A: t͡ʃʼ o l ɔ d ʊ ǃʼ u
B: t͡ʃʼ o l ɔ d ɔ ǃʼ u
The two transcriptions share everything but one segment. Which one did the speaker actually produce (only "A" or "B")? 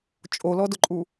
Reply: A